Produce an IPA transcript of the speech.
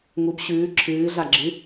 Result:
ŋ u b ɕ ʉː ǁʰ ɨː ɮ a ɡ͡ǁ ɨ

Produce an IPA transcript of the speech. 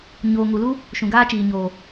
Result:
ɲ oː˨ ŋ u˨ l u˦ | ʃ ũ˨ ɡ aː˦ t͡ʃ iː˨ ɲ oː˨

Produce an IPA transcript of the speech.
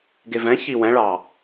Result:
ɡ e v ɛ̃ ç i w ɛ̃ ɭ ɑ

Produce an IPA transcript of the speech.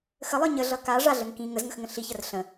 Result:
x ə lˠ ə˞ ɲ ə ɮ ʌ k a ʐ a ɮ ə ŋ k ĩ ŋ ə z ŋ ə x ŋ ə̃ ɬ i ç ə r ɬ ə̃

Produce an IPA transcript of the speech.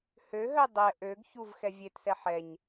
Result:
h ø ɦ œ dˤ ɛ ʔ ø ɡ ç u v x ɛ vʲ e t s ɛ ħ ɛ ɲ

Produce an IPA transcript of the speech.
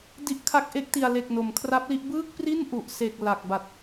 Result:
d i˦˥ ʔ kʰ a˦˥ k̚ ʔ e˦˥ k̚ t i˧ a̯ l e˨˩ k̚ n o˨˩ m kʰ r a˦˥ p̚ l i˦˥ ʔ b ɯː˥˩ k̚ p r i˥˩ n ʔ u˨˩ ʔ s e˨˩ k̚ l a˨˩ k̚ b a˨˩ t̚

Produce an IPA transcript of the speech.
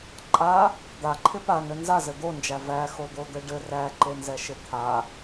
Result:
ǃʼ a | d̪ a ǃʰ ɪ p a n ɘ n z a z ɘ d̪ o n d͡ʒ æ v æ x o d̪ o d̪ ɘ ɖ ɘ r æ ǃ e n z ɛ ʃ ɪ t̪ʰ a

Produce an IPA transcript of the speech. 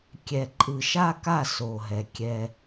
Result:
kʲ ɛ˨ ǃʼ ɯ˨ ʃ a˦ k a˦˨ s o˨ ɦ ɛ˨ kʲ ɛ˦

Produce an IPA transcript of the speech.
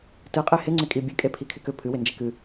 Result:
t ɨ qʼ e h ɪ ŋ͡ǀ ɪ kʼ i bʲ ɨ kʼ e pʰ i kʰ ɪ k ʏ pʰ ɨ w ɪ n d͡ʒ e k ɨ

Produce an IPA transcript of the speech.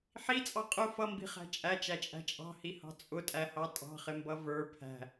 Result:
ħ i t͡sʼ ɑ qʼ ʊ f ʌ m b i̤ χ æ̤ t͡ʃʼ æ t͡ʃ æ t͡ʃʼ æ̤ t͡ʃʼ ɑ̤ h i h ɑ̤ t͡sʼ ʊ tʼ æ h ɑ tʼ ɑ̤ χ ɪ m b ʌ v ə˞ pʰ æ̤

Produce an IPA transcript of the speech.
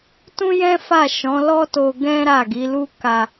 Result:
t ũ˦ j ɛ̃˦ f a˦˨ ʃ ɔ̃˨˦ l ɔ˦ t o˧ ɡ ɛ̃˦ ɾ a˦˨ ɡ i˨˦ l u˦ k a˧

